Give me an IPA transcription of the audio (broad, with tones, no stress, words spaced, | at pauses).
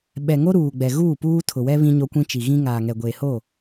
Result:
ɓɛ˨ŋo˦ ɾuː˨ɡ͡bɛ˨ ɣuː˦˨puː˦ tʰʊ˨wɛ˦ βĩ˦ɲo˦kʷĩ˦t͡ʃi˨ ɣĩ˦ ŋaː˨ŋɛ˨ ɡʷeː˨ho˦˨